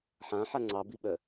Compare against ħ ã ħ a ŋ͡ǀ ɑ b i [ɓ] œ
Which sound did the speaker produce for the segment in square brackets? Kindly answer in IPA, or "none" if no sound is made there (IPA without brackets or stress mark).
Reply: ɓ